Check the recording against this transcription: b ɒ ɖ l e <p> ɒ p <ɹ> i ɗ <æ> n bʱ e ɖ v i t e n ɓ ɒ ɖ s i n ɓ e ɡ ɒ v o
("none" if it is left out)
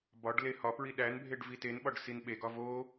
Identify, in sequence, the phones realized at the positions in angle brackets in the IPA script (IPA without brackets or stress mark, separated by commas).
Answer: h, ɹ, æ